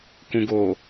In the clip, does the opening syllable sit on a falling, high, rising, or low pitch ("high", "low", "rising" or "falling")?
low